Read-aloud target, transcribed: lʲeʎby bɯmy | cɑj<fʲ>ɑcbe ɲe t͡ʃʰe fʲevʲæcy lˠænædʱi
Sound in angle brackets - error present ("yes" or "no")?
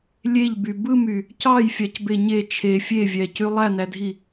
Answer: no